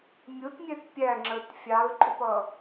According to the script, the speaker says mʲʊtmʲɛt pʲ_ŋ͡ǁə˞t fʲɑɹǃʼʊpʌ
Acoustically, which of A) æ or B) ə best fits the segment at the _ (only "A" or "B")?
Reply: A